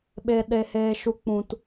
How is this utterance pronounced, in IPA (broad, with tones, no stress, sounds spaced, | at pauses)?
ɓ e˨ ɗ e˨ h eː˨ ʃ u˧ k͡p ũ˨ t